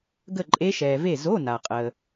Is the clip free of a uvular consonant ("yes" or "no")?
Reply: no